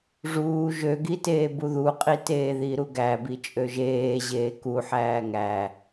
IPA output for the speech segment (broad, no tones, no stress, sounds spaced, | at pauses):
ʐ uː ʒ ø ɡ i t eː b u ð u qʼ i t eː ð i ɾ u ɡ æ b i t͡ʃʼ ø ʒ eː ʑ eː k u ħ æː ŋ æ